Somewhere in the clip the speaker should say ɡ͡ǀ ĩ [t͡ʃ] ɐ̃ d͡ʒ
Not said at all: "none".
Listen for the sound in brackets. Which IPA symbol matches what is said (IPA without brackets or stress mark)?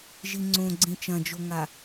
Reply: t͡ʃ